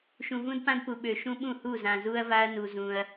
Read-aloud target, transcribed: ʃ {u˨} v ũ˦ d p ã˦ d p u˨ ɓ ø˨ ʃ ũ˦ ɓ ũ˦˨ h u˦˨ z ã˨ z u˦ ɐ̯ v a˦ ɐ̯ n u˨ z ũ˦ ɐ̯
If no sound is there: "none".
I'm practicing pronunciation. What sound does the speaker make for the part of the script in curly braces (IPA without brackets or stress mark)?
ũ˨